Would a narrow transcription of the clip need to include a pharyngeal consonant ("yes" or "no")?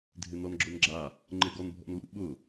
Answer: no